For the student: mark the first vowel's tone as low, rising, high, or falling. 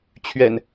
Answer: low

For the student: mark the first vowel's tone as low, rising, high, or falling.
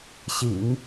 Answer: low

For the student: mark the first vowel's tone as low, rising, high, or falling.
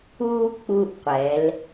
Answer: high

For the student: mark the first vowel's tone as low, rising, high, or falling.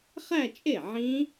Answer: falling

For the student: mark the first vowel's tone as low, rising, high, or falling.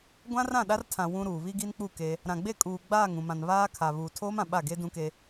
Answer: high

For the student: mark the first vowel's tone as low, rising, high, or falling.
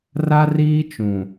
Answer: high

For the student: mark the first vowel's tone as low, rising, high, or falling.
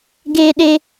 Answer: high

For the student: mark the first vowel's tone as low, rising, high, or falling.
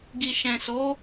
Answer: low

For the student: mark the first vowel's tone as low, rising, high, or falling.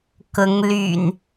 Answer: rising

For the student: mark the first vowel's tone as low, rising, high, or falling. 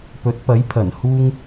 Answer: rising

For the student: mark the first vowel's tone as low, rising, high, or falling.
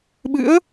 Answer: rising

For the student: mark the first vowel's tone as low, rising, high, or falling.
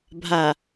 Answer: low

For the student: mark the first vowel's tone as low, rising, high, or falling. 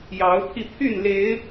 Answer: rising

